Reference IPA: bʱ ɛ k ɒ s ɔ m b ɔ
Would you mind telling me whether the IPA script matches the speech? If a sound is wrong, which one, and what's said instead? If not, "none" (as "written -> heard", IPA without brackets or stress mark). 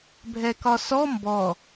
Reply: none